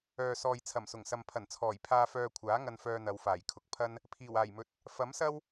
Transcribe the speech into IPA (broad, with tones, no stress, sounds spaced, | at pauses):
œː˨ s ɔː˨ j t͡sʰ ɐ˨˩ m s ʊ˨˩ ŋ s ɐ˨ m pʰ ɐ˨˩ n t͡sʰ ɔː˨˩ j pʰ aː˧ f œː˧ kʷʰ aː˨˥ ŋ ɐ˧ n f œː˧ n̪ ɐ˨˧ w f aː˨˩ j kʰ ʊ˨˥ k̚ pʰ ɐ˥ n | pʰ iː˨˩ w aː˨˩ j m ɵ˨ t̚ | f ɐ˨˥ m s ɐ˥ w